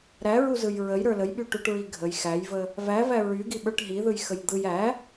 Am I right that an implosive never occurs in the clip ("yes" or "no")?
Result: no